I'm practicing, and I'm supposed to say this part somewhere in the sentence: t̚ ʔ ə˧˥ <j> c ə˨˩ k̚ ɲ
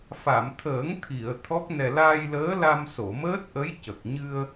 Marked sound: correct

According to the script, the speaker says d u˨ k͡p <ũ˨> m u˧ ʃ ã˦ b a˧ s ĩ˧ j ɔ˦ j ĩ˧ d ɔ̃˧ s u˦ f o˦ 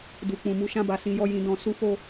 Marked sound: correct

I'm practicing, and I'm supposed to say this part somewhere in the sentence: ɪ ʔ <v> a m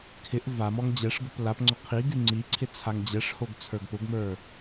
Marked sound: correct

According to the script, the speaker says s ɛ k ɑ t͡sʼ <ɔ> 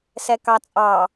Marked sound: incorrect: ɑ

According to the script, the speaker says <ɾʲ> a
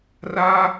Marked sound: incorrect: r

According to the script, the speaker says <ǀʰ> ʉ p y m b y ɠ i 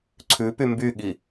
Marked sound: correct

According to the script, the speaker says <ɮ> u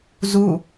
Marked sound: incorrect: z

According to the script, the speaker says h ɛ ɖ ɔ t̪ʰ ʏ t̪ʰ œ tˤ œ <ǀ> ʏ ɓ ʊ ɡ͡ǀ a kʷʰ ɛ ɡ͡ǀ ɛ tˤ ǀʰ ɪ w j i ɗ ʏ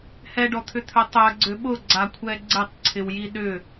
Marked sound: incorrect: ɡ͡ǀ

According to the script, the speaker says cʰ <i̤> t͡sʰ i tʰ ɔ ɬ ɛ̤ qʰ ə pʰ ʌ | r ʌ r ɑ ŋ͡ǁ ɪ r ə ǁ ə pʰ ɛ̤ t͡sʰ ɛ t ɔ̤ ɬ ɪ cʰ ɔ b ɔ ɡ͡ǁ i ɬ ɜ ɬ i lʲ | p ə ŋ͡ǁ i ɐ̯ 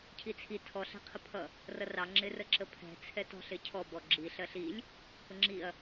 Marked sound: incorrect: i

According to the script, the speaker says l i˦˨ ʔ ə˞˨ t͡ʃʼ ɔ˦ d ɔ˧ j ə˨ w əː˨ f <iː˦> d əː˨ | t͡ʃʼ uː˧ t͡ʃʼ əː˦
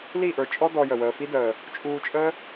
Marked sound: incorrect: i˦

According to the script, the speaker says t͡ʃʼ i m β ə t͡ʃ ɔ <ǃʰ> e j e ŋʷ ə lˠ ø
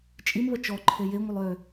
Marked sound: correct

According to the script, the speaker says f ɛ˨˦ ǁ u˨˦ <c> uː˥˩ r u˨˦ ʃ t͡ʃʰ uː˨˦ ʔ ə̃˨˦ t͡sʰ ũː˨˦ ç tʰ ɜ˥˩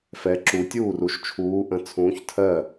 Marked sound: incorrect: tʲ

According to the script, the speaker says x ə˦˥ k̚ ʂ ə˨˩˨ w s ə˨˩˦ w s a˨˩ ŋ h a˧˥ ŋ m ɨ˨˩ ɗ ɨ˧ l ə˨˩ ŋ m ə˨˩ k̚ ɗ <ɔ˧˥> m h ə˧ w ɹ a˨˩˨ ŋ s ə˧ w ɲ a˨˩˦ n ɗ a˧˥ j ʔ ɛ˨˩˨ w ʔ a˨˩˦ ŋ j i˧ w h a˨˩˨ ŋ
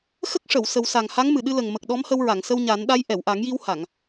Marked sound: correct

